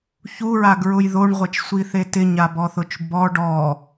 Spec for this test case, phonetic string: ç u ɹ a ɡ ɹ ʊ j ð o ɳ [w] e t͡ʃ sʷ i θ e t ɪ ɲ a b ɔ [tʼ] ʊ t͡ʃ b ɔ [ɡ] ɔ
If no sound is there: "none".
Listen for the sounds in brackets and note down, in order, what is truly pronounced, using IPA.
ʁʷ, θ, ɖ

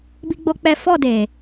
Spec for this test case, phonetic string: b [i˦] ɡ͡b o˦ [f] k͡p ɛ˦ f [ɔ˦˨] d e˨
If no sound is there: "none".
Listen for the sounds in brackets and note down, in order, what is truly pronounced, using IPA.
i˦, none, ɔ˦˨

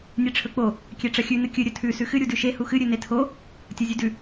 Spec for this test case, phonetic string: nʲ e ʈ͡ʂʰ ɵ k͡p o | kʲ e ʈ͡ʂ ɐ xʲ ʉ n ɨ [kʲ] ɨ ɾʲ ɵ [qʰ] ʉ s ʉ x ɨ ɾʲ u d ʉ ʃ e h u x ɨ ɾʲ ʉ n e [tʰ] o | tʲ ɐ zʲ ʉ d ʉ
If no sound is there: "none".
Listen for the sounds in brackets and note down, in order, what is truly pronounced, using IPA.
kʲ, tʰ, tʰ

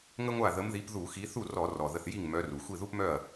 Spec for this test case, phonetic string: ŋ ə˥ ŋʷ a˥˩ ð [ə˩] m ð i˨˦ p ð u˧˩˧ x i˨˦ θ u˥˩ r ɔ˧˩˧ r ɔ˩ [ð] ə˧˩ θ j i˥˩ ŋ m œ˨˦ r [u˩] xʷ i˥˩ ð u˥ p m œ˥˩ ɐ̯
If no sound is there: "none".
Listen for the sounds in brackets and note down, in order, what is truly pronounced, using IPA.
ə˨˦, ð, u˩

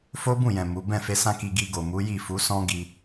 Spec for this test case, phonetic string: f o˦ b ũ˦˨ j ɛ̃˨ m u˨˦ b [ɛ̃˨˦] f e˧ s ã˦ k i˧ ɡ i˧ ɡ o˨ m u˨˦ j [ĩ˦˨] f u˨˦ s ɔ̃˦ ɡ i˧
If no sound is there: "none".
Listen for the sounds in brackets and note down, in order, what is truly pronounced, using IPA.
ɛ̃˦˨, i˦˨

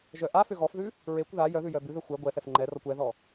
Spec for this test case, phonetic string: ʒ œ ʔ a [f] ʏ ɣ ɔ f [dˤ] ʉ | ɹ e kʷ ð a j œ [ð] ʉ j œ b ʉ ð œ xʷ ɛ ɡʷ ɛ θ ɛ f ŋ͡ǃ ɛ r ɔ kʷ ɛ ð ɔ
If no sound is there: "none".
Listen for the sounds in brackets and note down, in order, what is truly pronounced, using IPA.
f, ð, ð

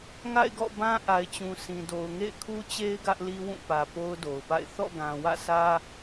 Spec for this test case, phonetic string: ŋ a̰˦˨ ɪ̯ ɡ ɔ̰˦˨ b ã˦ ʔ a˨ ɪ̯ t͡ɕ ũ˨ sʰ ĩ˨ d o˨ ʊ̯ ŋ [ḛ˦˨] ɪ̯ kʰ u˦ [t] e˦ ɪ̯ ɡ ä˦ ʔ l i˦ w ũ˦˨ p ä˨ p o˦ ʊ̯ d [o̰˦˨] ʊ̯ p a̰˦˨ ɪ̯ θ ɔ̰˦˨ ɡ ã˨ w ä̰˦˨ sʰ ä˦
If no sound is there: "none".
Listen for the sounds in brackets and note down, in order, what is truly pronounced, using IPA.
ḛ˦˨, t͡ɕ, o˨

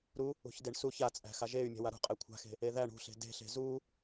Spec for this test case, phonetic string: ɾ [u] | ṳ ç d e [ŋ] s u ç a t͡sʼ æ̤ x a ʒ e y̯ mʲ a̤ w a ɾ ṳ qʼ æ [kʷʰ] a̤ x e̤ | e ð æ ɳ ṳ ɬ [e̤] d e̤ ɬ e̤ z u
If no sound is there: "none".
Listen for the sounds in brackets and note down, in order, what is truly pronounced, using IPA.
u, ɳ, kʷʰ, e̤

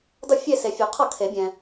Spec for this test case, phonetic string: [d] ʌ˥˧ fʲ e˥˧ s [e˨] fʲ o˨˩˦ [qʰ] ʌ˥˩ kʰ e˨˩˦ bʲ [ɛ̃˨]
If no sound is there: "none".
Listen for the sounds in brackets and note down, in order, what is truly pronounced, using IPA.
d, e˨, qʰ, ɛ̃˨

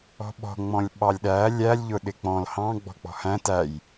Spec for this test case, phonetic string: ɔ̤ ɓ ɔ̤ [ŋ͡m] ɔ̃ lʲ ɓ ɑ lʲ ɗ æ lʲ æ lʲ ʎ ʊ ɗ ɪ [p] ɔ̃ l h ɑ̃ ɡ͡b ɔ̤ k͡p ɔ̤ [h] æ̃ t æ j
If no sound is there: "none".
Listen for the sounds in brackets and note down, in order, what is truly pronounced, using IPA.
ŋ͡m, k͡p, h

